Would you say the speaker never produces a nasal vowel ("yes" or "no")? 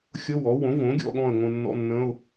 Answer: no